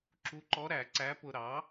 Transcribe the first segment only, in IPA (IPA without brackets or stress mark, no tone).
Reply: ǁ